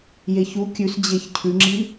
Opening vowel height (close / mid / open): mid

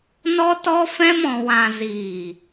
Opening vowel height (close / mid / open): mid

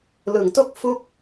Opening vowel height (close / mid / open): close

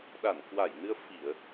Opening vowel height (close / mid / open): open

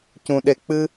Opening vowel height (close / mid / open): close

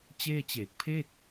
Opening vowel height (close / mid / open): mid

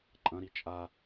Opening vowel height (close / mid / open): open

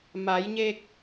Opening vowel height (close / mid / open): open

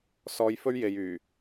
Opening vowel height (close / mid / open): mid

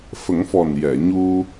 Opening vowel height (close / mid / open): mid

